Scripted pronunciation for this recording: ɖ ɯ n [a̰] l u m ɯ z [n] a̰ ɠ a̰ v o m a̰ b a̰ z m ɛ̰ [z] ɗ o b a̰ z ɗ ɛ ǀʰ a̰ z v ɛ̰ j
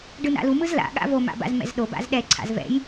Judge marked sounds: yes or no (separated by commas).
yes, no, yes